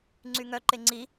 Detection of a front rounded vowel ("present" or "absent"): present